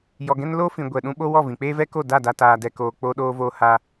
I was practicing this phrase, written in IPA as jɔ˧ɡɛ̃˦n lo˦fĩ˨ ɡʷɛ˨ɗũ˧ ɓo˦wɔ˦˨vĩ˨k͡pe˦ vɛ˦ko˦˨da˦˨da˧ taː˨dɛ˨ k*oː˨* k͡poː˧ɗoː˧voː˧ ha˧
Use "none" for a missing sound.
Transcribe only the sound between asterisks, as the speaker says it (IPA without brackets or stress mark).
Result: oː˨